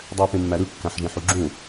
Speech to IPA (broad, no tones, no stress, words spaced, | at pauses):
dˤøʊ̯pẽmːæɾɯ kːæ̃ħʒẽħuɡ͡ǁũ